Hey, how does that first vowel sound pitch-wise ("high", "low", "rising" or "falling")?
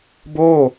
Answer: falling